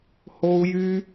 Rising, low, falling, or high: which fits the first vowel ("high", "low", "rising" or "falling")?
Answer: high